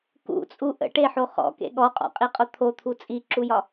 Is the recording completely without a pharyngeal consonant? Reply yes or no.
no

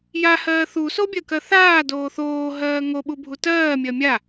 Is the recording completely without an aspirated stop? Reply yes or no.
yes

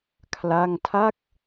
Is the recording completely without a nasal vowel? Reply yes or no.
yes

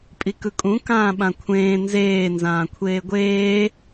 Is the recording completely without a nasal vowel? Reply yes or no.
no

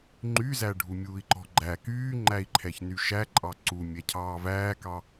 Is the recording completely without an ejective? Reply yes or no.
no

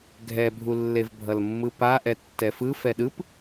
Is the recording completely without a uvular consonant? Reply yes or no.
yes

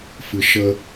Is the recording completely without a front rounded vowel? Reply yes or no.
yes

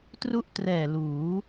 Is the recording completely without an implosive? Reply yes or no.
yes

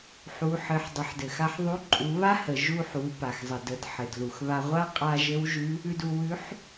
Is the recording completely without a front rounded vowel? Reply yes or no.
yes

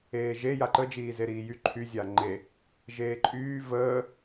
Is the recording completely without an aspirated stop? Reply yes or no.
no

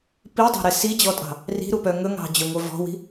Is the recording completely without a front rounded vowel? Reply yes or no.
no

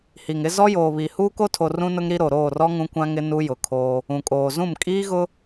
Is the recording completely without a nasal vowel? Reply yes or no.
no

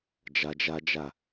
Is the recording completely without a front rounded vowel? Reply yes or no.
yes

